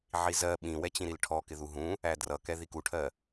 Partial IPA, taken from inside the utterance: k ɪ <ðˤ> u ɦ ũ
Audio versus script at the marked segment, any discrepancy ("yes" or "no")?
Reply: yes